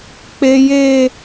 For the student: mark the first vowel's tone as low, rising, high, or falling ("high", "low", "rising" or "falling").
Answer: high